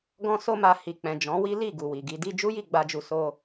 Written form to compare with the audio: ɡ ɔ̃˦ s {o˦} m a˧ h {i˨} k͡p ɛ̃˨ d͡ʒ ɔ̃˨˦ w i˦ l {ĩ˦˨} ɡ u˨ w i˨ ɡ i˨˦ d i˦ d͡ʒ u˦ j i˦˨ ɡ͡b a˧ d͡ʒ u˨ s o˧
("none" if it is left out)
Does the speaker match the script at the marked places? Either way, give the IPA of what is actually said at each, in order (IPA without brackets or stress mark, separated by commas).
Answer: o˦, i˨, i˦˨